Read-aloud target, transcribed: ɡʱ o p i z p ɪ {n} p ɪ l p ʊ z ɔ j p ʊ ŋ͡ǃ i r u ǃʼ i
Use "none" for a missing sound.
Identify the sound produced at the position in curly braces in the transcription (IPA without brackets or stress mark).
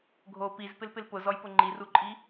l